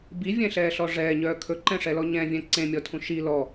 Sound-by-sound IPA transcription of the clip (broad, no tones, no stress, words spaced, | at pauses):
bivʲɛ̃ɬɛːɬɔ ʐɛːɲœː kʰɵǃɛ̃ʂɛlɔ ɲɛ̃vʲɛ̃ ǀẽmʲɔtʰũ ʃi lɔ